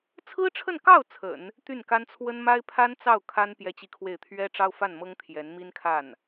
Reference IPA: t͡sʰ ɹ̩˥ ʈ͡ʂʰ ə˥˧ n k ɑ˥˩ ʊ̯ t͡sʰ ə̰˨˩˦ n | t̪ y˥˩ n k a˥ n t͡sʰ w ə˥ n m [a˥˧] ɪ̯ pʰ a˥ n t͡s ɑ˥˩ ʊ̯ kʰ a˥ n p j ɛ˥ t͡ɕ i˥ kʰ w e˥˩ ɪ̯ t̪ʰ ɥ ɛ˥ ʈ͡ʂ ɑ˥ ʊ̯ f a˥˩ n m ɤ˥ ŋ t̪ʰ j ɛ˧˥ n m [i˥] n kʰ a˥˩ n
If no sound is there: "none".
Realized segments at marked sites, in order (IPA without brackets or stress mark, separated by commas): a˥, i˥